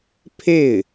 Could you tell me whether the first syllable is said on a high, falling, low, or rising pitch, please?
falling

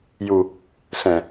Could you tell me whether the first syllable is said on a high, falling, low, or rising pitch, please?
low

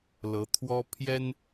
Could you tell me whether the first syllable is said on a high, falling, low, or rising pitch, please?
rising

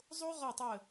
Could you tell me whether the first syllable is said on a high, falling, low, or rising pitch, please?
high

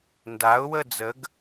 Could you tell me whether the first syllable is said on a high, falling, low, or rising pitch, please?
rising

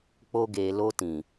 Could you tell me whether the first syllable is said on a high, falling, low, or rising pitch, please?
high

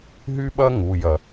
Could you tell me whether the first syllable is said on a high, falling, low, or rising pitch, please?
high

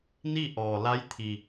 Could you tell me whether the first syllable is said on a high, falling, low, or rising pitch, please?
falling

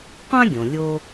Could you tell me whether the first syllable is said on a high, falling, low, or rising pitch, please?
high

